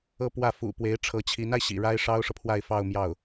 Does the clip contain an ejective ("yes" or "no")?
no